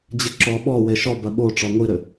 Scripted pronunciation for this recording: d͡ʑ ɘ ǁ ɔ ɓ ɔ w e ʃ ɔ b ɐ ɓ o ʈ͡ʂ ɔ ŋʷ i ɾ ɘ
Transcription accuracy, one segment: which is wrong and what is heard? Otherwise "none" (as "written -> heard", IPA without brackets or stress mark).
none